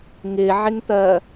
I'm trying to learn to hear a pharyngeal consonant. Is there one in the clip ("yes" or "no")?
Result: yes